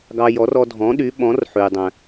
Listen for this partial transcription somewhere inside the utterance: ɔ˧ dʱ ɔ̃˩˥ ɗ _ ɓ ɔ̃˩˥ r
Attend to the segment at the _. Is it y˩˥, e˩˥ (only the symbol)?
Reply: y˩˥